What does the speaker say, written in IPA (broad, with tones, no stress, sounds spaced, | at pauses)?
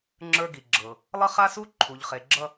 ŋ͡ǁ ə˞˦ ɡ i˨ ɡ͡ǁ ɤ˨ | lˠ ʌ˦ χ a˦ s u˦ ǃʰ u˨ ʎ χ e˨ ɡ͡ǁ ʌ˦